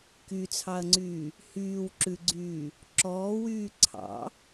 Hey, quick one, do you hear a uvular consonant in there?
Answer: no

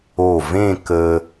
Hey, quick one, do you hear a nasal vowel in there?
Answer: yes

